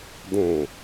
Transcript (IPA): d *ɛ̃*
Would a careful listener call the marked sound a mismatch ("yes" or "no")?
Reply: no